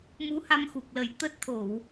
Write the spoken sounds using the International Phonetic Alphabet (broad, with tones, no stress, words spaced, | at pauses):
mu˨˦ha˧mxu˨˩k̚lə˨˩j t̪ə˦˥t̚ t̪ʰo˧˩˨w